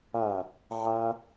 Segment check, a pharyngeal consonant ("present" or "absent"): present